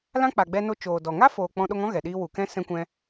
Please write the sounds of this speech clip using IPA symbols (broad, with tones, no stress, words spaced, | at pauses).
lã˦k͡pa˨ɡ͡bɛ˧ no˧t͡ʃoː˨dɔ˨ ŋa˦foː˨ k͡pɔ̃˧ɗo˧ŋɔ̃˦ ɣɛ˨ɗiː˦ wu˨kɛ̃˦ sɛ̃˦kʷɛ̃˦